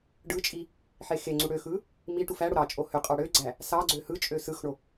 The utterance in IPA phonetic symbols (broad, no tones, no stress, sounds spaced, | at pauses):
ɖ ɯ t͡ʃʼ i | ħ e x e ŋ͡ǀ u ɽ ø x ɯ | m i ʈ u f æ ɽ o ɾ ɑ t͡ʃʼ o h ø qʼ ɑ ɽ ø ɡ͡ǀ æ | s ɑ ɡ͡ǀ ø h ɯ t͡ʃʼ ø s ɯ x ɳ o